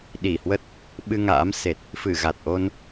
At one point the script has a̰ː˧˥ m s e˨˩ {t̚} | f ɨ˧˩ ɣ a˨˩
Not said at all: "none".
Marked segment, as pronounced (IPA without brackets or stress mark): t̚